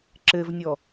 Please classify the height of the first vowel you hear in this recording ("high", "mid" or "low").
mid